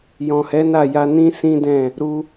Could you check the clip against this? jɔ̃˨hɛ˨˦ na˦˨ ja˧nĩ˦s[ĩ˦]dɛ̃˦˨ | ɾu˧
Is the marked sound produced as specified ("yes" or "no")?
yes